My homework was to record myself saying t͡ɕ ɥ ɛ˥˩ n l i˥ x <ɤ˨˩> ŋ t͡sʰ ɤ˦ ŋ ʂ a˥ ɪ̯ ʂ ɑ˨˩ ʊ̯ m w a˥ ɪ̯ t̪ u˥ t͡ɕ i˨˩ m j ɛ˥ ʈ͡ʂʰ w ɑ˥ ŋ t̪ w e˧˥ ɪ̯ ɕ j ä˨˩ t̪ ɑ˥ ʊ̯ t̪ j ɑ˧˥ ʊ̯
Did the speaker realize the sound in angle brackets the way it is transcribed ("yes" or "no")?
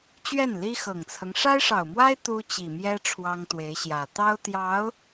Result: yes